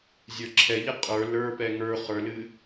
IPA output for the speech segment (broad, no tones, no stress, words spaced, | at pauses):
zʲə˞ǁʰɛʎɛ qʼə˞ lə˞pɛ ŋə˞ χə˞lɨ